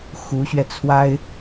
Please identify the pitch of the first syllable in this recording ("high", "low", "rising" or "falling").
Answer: rising